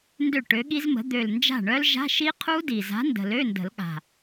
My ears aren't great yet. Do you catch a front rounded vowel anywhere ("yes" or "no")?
yes